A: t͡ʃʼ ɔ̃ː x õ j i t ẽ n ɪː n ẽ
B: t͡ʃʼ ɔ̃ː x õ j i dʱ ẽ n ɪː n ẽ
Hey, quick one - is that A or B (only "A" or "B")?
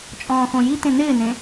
A